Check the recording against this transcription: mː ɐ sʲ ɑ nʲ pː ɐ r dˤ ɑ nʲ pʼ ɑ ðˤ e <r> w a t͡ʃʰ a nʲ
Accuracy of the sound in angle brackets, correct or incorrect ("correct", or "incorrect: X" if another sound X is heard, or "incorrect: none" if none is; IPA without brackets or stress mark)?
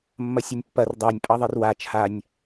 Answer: correct